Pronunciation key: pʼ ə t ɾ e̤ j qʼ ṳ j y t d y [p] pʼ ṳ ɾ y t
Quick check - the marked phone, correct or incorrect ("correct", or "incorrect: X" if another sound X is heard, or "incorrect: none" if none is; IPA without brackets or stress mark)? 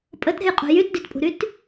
incorrect: t